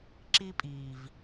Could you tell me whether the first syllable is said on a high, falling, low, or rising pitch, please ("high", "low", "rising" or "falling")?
high